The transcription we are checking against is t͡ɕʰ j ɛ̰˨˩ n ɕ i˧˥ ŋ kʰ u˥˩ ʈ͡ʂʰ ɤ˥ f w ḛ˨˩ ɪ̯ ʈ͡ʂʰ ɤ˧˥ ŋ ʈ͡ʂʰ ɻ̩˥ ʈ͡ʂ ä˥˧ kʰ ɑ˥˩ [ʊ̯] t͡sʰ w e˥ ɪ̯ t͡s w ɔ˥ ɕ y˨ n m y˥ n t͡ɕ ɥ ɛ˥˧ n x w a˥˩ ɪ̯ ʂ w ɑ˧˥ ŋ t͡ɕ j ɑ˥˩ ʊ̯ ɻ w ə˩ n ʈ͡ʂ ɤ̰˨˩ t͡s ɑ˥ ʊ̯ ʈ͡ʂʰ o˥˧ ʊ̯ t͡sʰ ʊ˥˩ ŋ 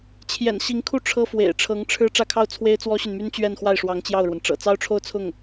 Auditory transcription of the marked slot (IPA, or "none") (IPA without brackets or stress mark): ʊ̯